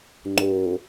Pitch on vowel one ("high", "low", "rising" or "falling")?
low